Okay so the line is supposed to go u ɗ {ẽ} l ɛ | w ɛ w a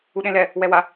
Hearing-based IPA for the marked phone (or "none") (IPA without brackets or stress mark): ẽ